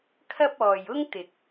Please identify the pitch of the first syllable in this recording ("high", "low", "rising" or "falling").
high